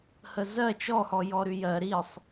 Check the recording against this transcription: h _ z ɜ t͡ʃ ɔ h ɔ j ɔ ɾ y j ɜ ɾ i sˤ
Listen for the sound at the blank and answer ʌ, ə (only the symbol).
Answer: ə